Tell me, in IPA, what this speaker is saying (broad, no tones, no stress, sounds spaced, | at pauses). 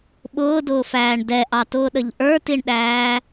ɓ ʊː d ʊː f æː ɳ d ɛ ʔ ɑ t ʊː ɗ ə ʎ ʔ ə˞ t i ɳ ɗ æː